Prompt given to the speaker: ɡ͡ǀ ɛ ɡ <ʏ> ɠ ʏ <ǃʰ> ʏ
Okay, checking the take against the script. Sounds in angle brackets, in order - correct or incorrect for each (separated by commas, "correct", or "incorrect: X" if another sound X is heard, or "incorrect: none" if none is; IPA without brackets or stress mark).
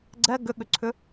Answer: correct, incorrect: ǀʰ